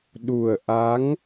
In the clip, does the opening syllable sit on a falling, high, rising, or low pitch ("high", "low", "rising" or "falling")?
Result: low